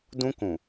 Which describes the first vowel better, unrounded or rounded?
rounded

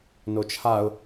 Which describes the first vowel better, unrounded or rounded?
rounded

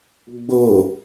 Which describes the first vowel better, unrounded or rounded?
rounded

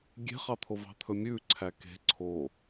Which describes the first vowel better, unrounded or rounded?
unrounded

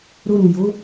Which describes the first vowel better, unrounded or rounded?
rounded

